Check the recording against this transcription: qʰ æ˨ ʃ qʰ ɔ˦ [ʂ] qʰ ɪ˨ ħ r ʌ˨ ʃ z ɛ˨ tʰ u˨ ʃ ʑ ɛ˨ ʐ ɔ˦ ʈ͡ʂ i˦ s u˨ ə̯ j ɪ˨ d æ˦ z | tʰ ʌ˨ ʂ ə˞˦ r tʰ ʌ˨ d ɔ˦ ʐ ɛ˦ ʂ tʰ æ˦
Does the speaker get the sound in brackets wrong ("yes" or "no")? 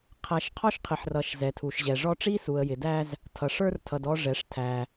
yes